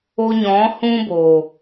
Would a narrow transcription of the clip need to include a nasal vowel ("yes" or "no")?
yes